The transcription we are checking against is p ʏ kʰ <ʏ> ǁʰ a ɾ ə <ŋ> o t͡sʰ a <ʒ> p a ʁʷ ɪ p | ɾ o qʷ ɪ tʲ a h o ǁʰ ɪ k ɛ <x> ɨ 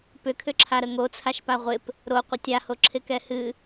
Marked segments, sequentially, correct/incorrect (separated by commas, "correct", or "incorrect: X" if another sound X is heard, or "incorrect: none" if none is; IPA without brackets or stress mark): correct, correct, incorrect: ʃ, incorrect: h